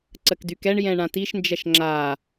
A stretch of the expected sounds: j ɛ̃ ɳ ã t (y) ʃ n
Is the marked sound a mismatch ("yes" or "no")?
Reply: yes